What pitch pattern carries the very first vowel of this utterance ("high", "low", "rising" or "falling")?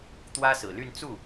high